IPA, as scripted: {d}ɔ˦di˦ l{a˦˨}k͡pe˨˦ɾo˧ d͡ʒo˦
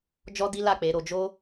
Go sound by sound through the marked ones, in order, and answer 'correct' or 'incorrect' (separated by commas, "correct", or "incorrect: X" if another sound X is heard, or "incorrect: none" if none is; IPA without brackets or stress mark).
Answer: incorrect: d͡ʒ, correct